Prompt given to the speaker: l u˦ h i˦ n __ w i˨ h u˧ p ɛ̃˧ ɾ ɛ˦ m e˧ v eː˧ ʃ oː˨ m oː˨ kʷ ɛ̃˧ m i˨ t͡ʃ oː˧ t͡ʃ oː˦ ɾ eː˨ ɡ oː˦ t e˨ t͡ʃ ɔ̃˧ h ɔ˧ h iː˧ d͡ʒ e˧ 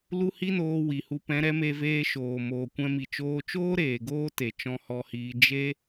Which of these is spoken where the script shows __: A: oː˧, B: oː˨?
A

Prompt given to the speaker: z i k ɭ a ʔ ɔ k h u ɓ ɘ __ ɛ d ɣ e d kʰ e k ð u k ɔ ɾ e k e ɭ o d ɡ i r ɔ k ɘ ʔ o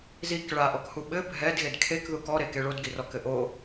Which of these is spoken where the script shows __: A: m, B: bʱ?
B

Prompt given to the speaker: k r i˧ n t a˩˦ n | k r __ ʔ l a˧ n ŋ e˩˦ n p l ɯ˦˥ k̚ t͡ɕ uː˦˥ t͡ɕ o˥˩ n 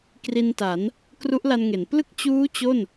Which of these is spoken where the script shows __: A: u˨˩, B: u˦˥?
B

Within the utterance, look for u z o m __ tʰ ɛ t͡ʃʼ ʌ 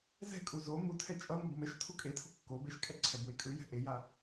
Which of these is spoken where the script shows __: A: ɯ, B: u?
B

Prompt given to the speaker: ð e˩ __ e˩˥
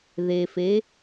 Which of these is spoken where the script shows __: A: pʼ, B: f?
B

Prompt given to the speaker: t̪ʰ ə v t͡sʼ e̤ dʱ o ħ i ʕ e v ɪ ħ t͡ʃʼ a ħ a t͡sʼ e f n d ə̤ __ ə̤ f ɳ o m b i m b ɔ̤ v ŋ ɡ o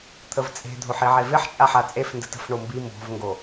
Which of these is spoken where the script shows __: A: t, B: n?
A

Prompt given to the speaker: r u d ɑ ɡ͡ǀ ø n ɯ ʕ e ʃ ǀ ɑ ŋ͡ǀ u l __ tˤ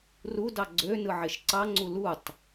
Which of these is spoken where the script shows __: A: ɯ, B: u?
B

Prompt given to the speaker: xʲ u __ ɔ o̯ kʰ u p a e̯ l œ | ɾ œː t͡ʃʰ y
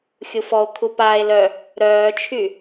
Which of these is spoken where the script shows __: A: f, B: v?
A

